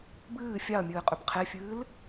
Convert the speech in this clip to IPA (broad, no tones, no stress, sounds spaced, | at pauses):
b ɨː fʲ a ɐ̯ mʲ ɨː qʼ ʏ b qʰ e fʲ ɨː l